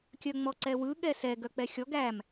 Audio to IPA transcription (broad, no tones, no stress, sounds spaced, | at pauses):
kʲ œ ŋ͡m ɔ ǀ ɛ w ɯ ɠ ɛ s ɛ ɡ œ k͡p ɛ xʲ ɔ ɡ æ m